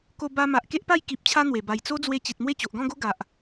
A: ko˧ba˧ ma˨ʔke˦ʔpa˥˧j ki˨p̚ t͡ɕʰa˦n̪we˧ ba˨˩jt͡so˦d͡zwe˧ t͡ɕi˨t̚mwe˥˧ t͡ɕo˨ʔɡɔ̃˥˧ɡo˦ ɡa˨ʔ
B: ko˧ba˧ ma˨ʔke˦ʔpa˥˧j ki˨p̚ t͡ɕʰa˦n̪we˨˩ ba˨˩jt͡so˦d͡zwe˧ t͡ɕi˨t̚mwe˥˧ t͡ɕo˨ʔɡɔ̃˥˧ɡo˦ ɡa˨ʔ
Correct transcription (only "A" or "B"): B